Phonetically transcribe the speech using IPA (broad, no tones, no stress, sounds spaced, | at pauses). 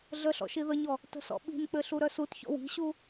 ɮ ə ɬ ɔ̰ ʃ i ð ə ɲ ɔ | t ə̤ s ɔ̰ ɓ i̤ n k͡p ɘ ɬ u ɾ œ s u t ç ɔ̰ w i̤ ɕ u